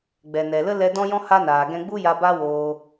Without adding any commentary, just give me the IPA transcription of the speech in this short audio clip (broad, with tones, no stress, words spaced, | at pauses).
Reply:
ɡ͡bɛ˨nɛ˨lə˦ lɛ˧dɔ̃˦jɔ̃˦ ha˦naː˨ ɡɛ̃˧ɡ͡bu˦ja˧ ba˦woː˧